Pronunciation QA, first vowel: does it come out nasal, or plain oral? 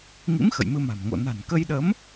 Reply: oral